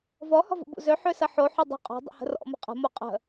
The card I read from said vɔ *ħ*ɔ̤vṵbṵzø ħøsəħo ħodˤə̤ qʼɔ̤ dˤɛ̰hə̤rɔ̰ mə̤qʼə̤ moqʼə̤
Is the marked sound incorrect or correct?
incorrect: h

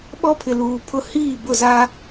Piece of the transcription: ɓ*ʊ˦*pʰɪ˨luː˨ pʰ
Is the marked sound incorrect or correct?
incorrect: ɔ˦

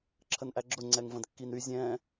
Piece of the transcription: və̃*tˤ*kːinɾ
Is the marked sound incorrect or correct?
incorrect: d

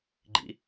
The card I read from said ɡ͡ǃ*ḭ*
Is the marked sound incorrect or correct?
correct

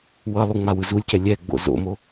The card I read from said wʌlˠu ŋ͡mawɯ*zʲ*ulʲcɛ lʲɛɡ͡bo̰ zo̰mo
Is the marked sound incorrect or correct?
incorrect: z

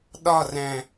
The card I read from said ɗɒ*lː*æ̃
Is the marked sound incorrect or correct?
incorrect: r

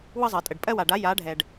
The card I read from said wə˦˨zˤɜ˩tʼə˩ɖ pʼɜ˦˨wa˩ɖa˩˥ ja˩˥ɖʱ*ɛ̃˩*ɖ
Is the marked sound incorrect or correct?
incorrect: ɛ˩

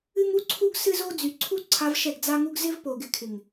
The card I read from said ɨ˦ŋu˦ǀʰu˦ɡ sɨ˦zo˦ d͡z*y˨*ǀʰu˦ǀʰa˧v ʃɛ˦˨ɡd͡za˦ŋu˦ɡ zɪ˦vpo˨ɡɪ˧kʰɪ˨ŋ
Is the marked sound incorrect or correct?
correct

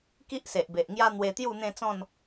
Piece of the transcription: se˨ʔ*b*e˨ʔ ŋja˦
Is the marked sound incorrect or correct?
correct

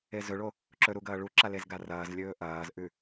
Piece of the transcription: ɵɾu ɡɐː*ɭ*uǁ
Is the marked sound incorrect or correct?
correct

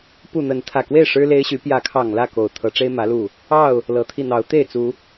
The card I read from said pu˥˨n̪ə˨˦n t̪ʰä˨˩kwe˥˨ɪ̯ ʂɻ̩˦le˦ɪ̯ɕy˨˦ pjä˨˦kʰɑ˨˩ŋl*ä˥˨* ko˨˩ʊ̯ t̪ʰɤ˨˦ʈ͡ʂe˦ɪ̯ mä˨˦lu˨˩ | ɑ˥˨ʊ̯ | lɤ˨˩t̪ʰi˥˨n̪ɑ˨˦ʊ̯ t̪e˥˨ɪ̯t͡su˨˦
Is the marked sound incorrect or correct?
correct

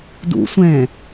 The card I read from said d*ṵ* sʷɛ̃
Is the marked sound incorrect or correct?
correct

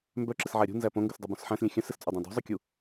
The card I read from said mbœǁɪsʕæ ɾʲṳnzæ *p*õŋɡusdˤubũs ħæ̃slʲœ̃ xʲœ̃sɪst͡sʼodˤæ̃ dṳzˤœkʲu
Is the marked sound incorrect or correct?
correct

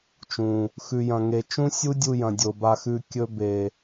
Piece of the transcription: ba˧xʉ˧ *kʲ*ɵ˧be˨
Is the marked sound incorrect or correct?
correct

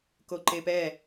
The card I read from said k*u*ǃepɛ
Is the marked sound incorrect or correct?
incorrect: o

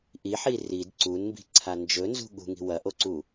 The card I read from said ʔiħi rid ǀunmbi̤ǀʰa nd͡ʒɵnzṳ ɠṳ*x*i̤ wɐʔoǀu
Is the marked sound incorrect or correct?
incorrect: ŋ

